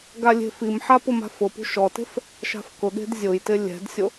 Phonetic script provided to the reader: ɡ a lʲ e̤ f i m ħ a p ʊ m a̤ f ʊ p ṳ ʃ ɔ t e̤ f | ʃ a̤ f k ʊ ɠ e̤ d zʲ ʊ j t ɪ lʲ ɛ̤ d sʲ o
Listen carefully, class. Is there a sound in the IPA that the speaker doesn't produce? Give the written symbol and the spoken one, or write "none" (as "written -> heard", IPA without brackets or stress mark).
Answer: none